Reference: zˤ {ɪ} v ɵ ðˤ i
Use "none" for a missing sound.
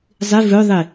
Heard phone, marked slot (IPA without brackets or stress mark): ɪ